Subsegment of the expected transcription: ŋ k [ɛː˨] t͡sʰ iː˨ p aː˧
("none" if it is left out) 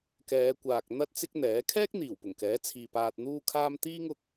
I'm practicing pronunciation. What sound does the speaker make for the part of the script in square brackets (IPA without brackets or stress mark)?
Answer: ɛː˨˥